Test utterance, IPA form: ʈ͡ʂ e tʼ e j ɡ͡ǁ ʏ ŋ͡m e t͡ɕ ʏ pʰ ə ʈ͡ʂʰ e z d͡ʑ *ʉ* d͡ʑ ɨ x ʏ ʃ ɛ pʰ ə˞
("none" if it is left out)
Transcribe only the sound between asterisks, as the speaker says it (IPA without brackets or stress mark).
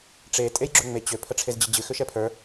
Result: ɨ